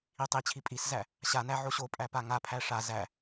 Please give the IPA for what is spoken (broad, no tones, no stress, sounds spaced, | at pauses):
i tˤ i t͡ɕʰ i pʼ i s z æ | ɕ a n æ ʕ o ɕ o pʼ æ p a ŋ a pʰ æ ʂ a z æ